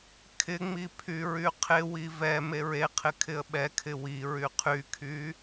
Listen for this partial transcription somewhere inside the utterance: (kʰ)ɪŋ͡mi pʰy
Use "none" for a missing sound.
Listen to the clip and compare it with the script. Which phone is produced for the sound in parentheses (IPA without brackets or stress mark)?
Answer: kʰ